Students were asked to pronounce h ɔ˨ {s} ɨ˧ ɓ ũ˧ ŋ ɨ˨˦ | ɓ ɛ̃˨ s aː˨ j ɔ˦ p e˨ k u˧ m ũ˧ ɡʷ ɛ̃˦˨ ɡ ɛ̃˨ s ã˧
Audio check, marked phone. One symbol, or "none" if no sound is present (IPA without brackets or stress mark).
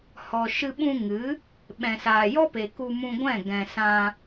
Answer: ʃ